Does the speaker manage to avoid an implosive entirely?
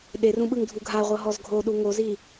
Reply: no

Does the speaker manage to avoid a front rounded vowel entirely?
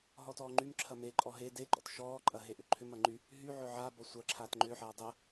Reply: no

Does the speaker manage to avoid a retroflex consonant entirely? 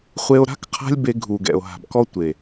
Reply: yes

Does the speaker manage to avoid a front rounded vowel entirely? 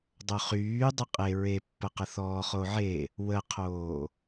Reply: no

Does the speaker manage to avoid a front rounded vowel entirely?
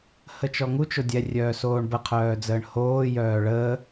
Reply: no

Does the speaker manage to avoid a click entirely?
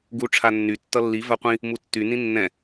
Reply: yes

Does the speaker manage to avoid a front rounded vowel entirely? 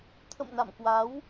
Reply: yes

